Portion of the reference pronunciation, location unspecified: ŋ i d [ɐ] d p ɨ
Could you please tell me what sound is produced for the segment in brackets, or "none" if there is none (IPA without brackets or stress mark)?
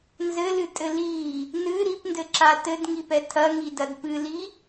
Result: ɐ